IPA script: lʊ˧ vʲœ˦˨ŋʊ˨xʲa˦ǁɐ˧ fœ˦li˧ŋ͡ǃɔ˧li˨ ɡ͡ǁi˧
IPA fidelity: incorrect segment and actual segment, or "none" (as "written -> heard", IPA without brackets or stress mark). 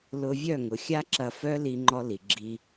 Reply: none